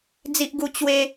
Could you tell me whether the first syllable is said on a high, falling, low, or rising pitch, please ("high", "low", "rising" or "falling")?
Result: high